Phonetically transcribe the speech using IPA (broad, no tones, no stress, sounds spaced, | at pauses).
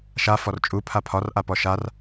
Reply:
ʃ a f ɔ r t͡ʃʼ u pʰ a pʰ ɒ r ʔ a p ɔ ʃ a r